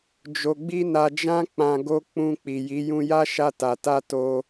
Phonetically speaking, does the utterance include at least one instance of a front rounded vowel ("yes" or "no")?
no